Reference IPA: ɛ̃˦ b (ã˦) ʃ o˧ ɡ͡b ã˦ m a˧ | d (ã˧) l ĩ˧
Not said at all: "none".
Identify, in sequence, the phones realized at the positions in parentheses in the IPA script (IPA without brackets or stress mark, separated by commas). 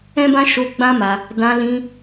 ã˦, ã˧